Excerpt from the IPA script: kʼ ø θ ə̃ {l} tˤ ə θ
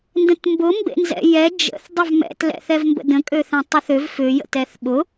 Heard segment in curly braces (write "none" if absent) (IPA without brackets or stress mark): none